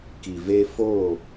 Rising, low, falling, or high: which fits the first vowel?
low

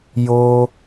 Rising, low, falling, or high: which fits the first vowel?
high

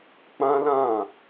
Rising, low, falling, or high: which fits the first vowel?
high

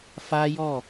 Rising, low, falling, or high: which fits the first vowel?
high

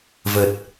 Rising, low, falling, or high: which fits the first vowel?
low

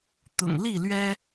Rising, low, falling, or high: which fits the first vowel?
low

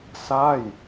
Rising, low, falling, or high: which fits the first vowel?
falling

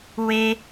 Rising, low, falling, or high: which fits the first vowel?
high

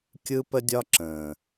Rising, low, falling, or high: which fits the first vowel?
high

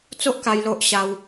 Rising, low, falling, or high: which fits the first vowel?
high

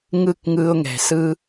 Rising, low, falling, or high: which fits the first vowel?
falling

